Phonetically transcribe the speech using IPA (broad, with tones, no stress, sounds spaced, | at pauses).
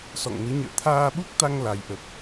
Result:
s ɔ̰˧˨ ŋ n ɨ˨˦ ɲ ə̰ː˧˨ t̪ʰ aː˧ ɓ u˦˥ k̚ t̪ a˧ ŋ l a˨˦ j ʔ ə˨˩ p̚